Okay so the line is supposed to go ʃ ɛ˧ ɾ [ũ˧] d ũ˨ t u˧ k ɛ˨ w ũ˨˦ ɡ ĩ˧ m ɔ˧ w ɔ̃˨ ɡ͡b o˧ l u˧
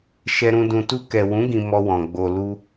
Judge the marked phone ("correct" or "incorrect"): correct